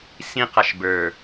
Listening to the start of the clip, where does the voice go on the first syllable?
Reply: high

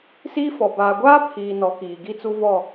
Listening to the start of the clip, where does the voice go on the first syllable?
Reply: high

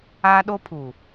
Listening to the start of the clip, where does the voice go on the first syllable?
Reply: high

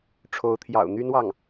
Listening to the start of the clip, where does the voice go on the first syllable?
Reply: rising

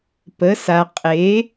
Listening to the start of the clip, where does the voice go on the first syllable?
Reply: rising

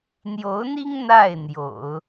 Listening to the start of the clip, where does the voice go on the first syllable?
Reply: rising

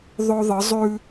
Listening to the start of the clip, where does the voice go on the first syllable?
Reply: high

